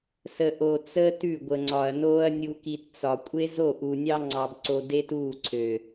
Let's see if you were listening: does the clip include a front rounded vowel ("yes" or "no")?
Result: yes